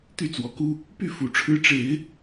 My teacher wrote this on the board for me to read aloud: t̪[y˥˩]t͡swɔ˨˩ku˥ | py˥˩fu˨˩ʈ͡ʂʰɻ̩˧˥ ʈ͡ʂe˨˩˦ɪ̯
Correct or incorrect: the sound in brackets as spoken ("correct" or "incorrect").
correct